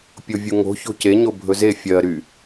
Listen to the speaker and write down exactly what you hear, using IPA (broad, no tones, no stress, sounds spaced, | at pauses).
pʲ o vʲ u ŋ o̤ ç o̤ c e ɲ o bʱ ɵ z e fʲ ɜ ɾ y